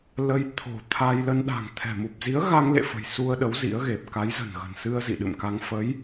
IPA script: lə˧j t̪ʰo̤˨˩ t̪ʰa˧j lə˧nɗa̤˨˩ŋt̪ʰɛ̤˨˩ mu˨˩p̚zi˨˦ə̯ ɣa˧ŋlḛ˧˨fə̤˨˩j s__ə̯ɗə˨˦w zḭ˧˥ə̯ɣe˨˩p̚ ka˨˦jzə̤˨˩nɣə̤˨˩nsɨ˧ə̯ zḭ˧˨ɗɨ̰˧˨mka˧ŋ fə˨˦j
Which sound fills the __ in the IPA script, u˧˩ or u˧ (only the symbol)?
u˧